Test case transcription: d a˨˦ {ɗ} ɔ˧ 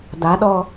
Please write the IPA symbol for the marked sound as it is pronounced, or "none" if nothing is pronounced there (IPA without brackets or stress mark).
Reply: ɗ